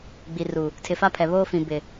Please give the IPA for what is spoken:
ɡ͡bi˨ru˨ | tʰɪ˨fa˦pʰɛ˨ βoː˦fĩ˨bɪ˨

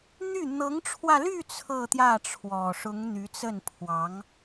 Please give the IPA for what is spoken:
n̪y˥˩ n̪ɤ˧˥ŋʈ͡ʂʰwä˧ly˥˧ t͡sʰɤ˥˧t̪jä˥˩ʈ͡ʂʰwɔ˨˩ʂʊ˧˥ŋ n̪y˧˥t͡sə˥˩npʰwɑ˧˥ŋ

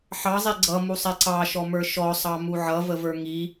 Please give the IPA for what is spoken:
ħɑzˤi ɡ͡ǀʌmusˤɛ ǀɑʃɔmə˞ ʃɔsˤɑmu ʕʌvəvə˞ ŋi

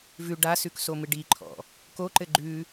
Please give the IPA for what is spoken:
vʉ ɖasʉk somɨɖiǃʰɔ̰ | koǃɘ ɡ͡ǃʉ

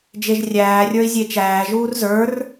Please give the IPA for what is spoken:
d͡ʒeʒrʲæːrʲə˞i̯ zʲet͡ʃæːʒuːr zə˞r

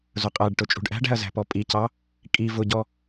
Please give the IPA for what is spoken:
zʊqʼæɖʈʊ t͡ʃʼṳɖʔæ̤ɖæ̤ɐ̯ zæ̤pɔpʼicɑ | kʼi vʊɟɔ

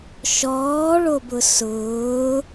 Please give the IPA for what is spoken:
ʃɔːɭobʊ sʊː

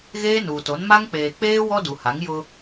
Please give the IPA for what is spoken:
ɣeː˦nuː˨to˨˦n ma˦ŋk͡peː˨ k͡peː˦ wɔ˦du˨ha˨˦ŋ jʊ˦

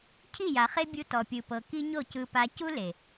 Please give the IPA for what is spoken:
cʰi˦˨ja˨χe˦bʲu˧ tɔ˨pʲɯ˨pɤ˨ ki˦ɲo˦˨cɯ˧pa˧ cu˦le˨

